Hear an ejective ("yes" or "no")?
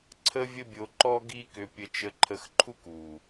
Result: no